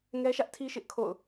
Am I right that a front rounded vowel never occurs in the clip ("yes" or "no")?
yes